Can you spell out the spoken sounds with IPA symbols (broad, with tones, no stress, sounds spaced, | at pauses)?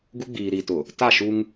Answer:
ɡ u˦ ɡ͡b iː˨ ɾ i˨ t ʊ˨ | t a˦˨ ʃ u˦ ŋ